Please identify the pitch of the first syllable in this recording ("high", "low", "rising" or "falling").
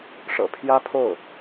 low